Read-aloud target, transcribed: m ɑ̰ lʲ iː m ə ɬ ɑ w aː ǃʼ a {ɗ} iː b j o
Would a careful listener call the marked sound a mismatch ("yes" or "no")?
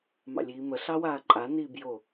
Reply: yes